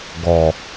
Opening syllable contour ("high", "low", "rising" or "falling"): low